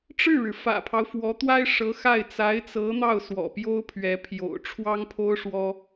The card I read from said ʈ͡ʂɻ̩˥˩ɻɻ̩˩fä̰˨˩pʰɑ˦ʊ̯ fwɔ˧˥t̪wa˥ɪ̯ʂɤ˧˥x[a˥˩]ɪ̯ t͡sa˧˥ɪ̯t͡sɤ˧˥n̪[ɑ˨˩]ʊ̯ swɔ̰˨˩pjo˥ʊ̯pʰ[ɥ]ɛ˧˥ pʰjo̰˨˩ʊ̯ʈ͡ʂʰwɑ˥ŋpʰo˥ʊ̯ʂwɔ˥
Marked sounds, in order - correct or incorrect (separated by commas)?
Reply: correct, incorrect, correct